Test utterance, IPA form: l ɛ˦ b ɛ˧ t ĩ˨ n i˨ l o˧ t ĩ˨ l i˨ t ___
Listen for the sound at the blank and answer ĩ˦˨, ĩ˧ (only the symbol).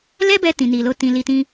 ĩ˧